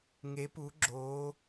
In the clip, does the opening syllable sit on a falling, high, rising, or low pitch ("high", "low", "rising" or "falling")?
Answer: rising